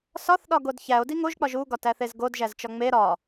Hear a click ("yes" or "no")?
no